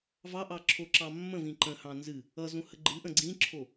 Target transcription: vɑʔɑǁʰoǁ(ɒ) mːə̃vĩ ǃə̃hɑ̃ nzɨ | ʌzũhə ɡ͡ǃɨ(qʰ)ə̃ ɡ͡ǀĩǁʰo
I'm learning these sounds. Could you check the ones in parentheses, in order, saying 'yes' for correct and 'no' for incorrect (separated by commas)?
no, no